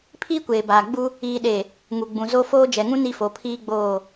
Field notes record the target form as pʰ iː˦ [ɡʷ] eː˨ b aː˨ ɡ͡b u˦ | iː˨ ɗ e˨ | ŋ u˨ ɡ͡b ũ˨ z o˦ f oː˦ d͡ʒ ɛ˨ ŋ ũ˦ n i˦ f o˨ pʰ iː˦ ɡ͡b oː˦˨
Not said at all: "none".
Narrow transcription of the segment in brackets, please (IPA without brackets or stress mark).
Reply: kʷ